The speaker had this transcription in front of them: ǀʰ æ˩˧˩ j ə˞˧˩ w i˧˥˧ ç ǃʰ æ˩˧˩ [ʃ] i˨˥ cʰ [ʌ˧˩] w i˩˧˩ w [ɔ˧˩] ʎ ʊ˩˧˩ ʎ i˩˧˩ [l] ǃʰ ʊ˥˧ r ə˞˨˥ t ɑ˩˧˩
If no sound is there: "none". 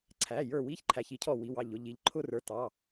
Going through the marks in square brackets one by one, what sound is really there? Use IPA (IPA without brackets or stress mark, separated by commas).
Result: ç, ɔ˧˩, ɑ˧˩, ʎ